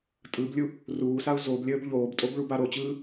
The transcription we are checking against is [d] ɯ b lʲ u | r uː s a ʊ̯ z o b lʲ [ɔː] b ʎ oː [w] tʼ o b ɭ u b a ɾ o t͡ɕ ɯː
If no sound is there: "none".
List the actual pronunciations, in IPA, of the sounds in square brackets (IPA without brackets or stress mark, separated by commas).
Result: tʼ, əː, b